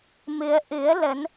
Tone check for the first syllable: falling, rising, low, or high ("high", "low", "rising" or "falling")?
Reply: rising